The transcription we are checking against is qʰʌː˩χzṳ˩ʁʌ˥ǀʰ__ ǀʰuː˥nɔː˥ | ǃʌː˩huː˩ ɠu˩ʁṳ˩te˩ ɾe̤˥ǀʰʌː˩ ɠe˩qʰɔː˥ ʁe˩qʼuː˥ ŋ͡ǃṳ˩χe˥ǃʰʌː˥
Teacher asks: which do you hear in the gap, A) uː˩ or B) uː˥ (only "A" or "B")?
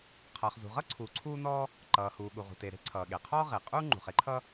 A